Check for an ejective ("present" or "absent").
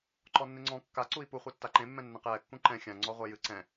absent